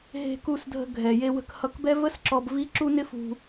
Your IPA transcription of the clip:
ɦ e̤˧ k u˧ s dʱ ə̤˧ ɡʱ ɛ˨ j e˧ w ə̤˧ k h ʌ˧ k b ɛ˦ v ə˦ s ǁ ɔ˧ b v i˦ ǁ u˦ n ɪ˦ f ṳ˧

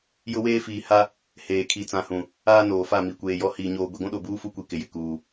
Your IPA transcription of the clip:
j ʊ˦ w eː˦ f iː˨ h a˦ | h eː˨ kʰ i˨ t͡s ã˨ h ũ˨ | aː˦ n oː˨ f a˦˨ m i˨ kʷ eː˨ j ɔ˦ h iː˨ ɲ oː˨ ɡʷ i˨ ɡʷ ũ˦ ɗ o˨ b uː˦ f u˦ kʷ i˨ k ɪ˨ j ɪ˨ k uː˨

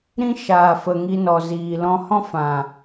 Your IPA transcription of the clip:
ɾ ĩ˦ ʃ aː˨ f ə˨ ŋ i˧ n ɔ˨ z iː˨ l ɔ̃˧ h ɔ̃˦ f ã˨

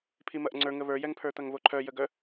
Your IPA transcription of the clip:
pʰ i m ɐ ʔ ŋ͡ǀ ə˞ ŋ ə β ə˞ j ɛ ŋ pʰ ə˞ t̪ ɐ ŋ β o ǃʰ œ j ə ɡ œ

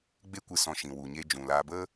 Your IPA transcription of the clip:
ɡ͡b e˦ kʷ ɨ˧ s ɔ̃˧ ʃ ĩ˧ w u˧ ɲ e˦ d͡ʒ ũ˧ l aː˧ b ə˦

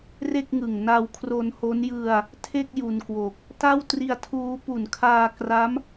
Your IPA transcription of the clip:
r e˥˩ k̚ ŋ ɯ˨˩ ŋ n a˧ w kʰ r o˧ n h o˦˥ n j ɯ˧ a̯ | tʰ e˥˩ k̚ j u˧ n k w o˨˩ k̚ | t a˥˩ w t r i˧ a̯ tʰ uː˦˥ p u˨˩ n kʰ aː˧ k r a˦˥ m

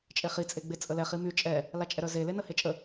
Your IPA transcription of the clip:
t͡ʃʼ e χ i t͡sʼ e ɡ͡b e t͡sʼ ə l ɛ χ i m y t͡ʃʼ ɛ | l a t͡ʃʼ ɛ ɾ œ z e l e n ə h e t͡ʃʼ ə

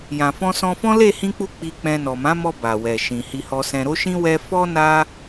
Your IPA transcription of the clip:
j ã˨ f ɔ̃˧ s ɔ̃˧ f ɔ̃˦ l e˦˨ h ĩ˧ k͡p u˧ k͡p i˧ k͡p ɛ̃˧ n ɔ˨ m ã˨˦ m ɔ˧ b a˨ w ɛ˨ ʃ ĩ˨ h i˧ h ɔ˧ s ɛ̃˧ ɾ o˦ ʃ ĩ˦ w ɛ˦ f ɔ˦ n a˦

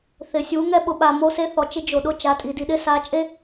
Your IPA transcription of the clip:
θ ɪ˨ sʲ u˨˦ ŋ ɛ˦ ɓ ʊ˨ ɓ a˨ m o˦ s e˦ θ ɔ˨ t͡ʃ ɪ˦ d͡ʒ o˨ ɗ ʊ˦ t͡ʃ a˨˦ tʼ i˨ d i˨ ɗ ɪ˦ s a˨˦ t͡ʃʼ e˦

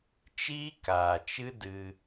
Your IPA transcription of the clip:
t͡ʃ iː˦ k aː˨ t͡ʃ ɨ˦ d ɨ˧

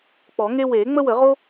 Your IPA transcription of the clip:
k͡p ɔ˨˩˦ ŋ e˦ w eː˨˩˦ ŋ͡m ə˦ w ə˨˩˦ ʁ o˦

